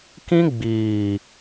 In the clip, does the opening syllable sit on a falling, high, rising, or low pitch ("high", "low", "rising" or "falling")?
high